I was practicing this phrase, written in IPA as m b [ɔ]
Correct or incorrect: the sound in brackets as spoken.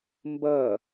incorrect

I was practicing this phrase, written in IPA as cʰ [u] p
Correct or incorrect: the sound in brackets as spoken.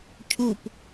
correct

